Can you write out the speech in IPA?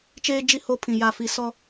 t͡ʃ eː˦ d͡ʒ i˦ h o˦ pʰ ĩ˨ j a˨ f i˨ s ɔ˦

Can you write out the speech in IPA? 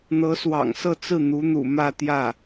n̪ ɤ˧˥ s w ɑ̰˨˩ ŋ s ɤ˥˧ t͡s ɹ̩˥˩ n̪ u˧˥ n̪ ṵ˨˩ m ä˥˧ t̪ j ä˥˩

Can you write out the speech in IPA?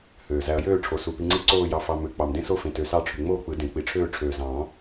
h øː˨˩ z æ˧ ɐ̯ j øː˥˧ ʈ͡ʂʰ o˨˩ s u˨˩ p i˧ ŋ͡ǀ i˥˧ ǀ oː˥˧ j ɑ˧ f ɑ˧ m ø˨˩˦ k͡p ɑ˨˩ m d ẽ˥˧ s o˥˧ f ẽ˨˩ t ø˨˩ s ɑ˥˧ ʈ͡ʂʰ y˨˩ ŋ͡m oː˥˧ k͡p ɯ˨˩˦ d ẽ˨˩ k͡p i˨˩˦ ʈ͡ʂʰ øː˥˧ ʈ͡ʂʰ øː˨˩ z ɑ̃ː˨˩˦

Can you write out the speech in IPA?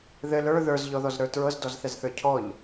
ð ɘ l ə˞ ð ə˞ z ʎ ɔ ð ɔ z ɾ ə˞ t ɹ ɤ z d ɔ z θ ɛ z θ ə˞ cʰ ɔ ʎ

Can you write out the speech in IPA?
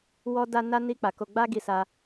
w ɔ˦ d a˦ n a˦ n i˦ k͡p a˧ k o˧ ɡ͡b a˦ ɡ i˧ s a˦

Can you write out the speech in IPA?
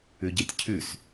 ʉ ɟ e tʲ cʰ ʉ s

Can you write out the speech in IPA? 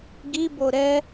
ɡ i b o ɾ ɛ

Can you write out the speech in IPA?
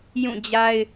j ũ˦˨ d͡ʑ a˦ ɪ̯

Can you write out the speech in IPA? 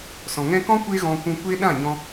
s ɔ̃˨ ŋ ɛ̃˦ k ɔ̃˦ kʷ e˦ ɣ ɔ̃˧ kʷ ũ˧ kʷ e˦ ɗ ã˦˨ ɲ ɔ̃˧

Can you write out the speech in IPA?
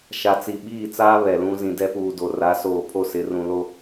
ʃ a˨ t͡s i˨ ɓ iː˦˨ t͡s aː˦ β ɛ˨ l ũ˦ z ĩ˨ d ɛ˦ p uː˨ d o˨ r a˨˦ s oː˨ pʰ o˦˨ s ɪ˨˦ r ũ˨ l o˦

